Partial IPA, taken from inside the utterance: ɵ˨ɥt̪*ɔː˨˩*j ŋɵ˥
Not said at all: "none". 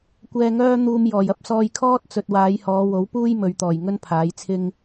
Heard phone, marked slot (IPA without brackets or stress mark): ɔː˨˩